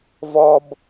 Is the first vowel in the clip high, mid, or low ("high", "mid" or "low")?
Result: mid